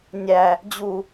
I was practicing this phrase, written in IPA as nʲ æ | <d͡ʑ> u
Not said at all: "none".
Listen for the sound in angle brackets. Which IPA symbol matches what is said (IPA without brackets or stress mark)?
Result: d͡ʑ